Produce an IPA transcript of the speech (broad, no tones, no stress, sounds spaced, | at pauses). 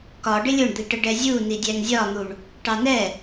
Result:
k ɒ ɖ ɪ lʲ ʊ ɳ d̪ i ʈ ə ɖ ɛ zʲ u n i dʲ æ ŋ zʲ ɒ n̪ u ɳ | ʈ ɑ n ɛ